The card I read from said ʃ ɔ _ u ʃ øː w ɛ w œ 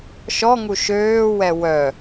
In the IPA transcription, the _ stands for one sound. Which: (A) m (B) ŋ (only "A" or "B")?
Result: B